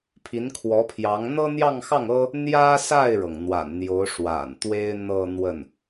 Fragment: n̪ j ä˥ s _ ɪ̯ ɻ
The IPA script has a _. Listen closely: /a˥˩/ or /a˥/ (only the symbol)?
a˥˩